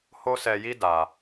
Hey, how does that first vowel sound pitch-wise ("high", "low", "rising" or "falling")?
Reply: high